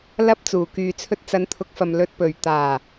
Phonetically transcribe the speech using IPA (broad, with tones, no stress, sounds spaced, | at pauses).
l ɐ˥ p̚ t͡s uː˨˩ k yː˨ t͡sʰ ɵ˧ t̚ t͡s ɐ˨˧ n t̪ʰ ʊ˨˥ k̚ f ɐ˨ m l ɵ˨ t̚ p ɵ˨˩ ɥ t̪ aː˨˩